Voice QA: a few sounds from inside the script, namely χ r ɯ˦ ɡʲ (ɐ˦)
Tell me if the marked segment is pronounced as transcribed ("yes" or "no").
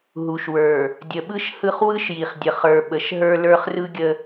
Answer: no